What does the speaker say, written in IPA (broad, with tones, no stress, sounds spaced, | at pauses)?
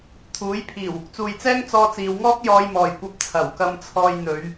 t̪ʰ uː˨˥ j pʰ iː˨˩ w | t͡s uː˨ j t͡s ɛː˥ ŋ t͡s ɔː˧ t͡s iː˨˧ w ŋ ɔː˥ k̚ j ɔː˧ j m ɔː˨˩ j kʷ ɐ˧ p̚ t͡sʰ ɐ˨˩ w k ɐ˧ m t͡sʰ ɔː˧ j n̪ ɵ˨˧ ɥ